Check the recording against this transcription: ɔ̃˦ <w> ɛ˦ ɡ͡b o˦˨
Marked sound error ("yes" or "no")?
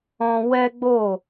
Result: no